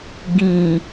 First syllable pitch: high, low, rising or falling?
low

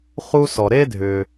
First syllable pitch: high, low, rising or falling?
high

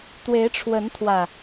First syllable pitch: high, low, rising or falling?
rising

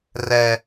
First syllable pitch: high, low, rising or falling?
high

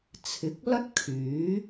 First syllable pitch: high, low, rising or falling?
rising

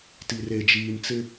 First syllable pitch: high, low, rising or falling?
low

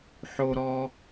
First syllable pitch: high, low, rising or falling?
low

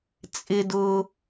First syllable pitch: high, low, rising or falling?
high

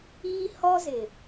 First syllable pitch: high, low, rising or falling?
high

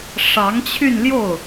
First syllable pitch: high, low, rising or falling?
rising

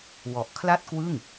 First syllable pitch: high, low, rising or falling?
low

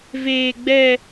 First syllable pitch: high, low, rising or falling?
high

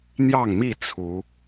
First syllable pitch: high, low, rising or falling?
falling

